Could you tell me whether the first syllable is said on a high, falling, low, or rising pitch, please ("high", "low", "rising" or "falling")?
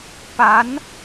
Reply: rising